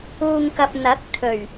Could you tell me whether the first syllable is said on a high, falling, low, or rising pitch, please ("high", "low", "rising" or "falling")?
low